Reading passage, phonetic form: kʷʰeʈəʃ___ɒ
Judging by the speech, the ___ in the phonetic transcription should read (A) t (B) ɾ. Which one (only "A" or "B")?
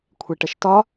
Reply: A